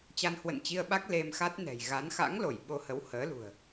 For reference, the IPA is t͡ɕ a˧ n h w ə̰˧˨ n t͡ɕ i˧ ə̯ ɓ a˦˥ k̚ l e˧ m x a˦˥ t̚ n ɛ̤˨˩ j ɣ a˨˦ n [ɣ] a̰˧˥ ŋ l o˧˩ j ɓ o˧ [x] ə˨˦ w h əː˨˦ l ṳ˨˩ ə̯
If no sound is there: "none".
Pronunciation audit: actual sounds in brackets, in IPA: x, h

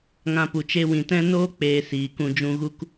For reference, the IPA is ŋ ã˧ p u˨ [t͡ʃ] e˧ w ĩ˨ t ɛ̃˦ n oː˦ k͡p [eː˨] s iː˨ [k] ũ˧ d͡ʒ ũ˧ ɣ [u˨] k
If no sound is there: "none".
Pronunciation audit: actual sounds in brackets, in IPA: t͡ʃ, eː˨, k, u˦

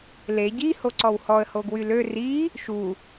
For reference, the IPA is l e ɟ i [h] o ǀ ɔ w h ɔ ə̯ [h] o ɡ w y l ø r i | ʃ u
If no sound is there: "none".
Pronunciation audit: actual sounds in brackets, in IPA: h, h

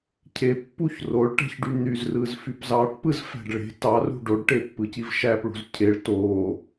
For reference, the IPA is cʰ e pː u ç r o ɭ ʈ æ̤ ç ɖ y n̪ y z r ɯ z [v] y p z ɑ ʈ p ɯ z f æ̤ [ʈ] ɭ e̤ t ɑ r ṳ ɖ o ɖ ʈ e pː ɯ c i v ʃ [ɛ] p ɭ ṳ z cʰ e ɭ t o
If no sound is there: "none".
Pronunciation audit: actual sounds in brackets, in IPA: f, ɖ, æ

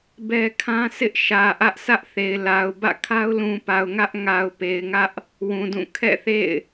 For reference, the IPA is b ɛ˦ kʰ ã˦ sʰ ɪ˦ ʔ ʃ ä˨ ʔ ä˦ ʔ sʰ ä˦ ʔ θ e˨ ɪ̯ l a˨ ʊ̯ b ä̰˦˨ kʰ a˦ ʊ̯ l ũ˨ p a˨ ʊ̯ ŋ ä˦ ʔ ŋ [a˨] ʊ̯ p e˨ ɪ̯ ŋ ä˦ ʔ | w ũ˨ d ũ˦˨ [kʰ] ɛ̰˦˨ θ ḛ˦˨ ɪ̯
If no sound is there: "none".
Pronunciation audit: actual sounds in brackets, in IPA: a˨, kʰ

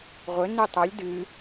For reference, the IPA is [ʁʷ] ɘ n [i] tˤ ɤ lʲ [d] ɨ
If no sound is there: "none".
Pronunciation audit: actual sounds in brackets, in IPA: ʁʷ, i, d

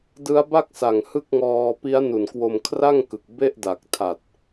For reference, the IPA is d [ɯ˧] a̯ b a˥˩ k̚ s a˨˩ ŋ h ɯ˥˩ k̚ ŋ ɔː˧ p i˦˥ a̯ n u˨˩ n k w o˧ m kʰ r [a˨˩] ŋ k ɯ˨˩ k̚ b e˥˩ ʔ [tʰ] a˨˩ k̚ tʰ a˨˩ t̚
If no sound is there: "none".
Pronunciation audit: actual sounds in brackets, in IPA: ɯ˦˥, a˥˩, d

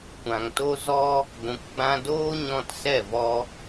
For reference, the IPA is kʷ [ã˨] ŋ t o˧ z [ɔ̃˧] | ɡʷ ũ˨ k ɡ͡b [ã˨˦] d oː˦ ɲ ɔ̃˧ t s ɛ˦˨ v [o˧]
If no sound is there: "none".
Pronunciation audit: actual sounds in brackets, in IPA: ã˨, ɔ˧, ã˧, ɔ˧

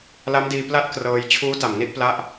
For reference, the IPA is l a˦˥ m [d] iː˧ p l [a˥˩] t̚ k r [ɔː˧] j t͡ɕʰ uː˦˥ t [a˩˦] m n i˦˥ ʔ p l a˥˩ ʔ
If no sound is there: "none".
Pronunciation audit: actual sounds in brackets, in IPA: d, a˥˩, ɤː˧, a˨˩

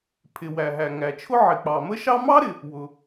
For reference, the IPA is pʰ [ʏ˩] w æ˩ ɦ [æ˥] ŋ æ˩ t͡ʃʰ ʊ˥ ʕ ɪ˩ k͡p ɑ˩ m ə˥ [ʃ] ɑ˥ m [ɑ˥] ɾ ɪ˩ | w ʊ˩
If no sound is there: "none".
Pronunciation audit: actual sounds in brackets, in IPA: ɪ˩, æ˩, ʃ, ɑ˥

